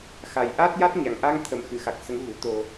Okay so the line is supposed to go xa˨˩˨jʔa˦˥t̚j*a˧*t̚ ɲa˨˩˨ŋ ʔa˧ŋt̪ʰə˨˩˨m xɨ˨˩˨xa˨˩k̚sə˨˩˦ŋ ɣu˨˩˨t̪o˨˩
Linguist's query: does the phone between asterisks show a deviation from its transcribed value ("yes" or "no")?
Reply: yes